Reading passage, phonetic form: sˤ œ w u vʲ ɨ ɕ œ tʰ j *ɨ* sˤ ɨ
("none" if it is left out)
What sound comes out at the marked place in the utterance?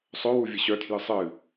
ɨ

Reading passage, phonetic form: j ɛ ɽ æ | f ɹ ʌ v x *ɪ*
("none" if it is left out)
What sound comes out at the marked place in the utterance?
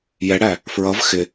ɪ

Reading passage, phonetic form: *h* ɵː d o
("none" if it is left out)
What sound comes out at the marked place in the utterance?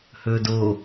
h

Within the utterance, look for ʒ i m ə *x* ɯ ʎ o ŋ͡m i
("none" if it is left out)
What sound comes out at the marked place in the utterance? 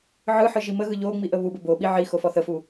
ɣ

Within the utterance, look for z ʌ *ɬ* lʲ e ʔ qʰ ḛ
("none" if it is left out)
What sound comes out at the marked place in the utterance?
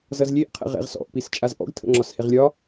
z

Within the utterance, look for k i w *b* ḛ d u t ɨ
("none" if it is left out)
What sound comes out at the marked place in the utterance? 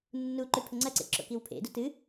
pʰ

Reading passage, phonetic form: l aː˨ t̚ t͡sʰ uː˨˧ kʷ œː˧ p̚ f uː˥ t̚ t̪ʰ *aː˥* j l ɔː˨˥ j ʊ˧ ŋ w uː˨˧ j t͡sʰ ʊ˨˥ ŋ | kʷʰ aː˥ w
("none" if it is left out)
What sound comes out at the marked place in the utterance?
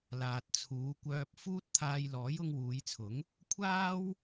aː˧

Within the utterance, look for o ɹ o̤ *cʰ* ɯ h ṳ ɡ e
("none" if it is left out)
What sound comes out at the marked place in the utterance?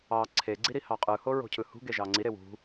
cʰ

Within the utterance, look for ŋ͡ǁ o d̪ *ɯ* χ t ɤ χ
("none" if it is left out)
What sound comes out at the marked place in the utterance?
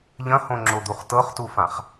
u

